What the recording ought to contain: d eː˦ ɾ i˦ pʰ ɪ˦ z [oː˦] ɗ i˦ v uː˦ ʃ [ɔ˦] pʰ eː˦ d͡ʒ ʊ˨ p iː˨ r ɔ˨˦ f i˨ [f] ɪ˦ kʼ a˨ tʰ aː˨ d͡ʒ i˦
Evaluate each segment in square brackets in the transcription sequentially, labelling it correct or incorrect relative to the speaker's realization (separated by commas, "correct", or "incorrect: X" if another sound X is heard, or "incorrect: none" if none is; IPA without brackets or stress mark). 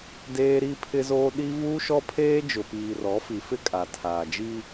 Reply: correct, correct, correct